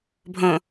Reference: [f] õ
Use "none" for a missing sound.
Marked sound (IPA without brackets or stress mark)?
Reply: bʱ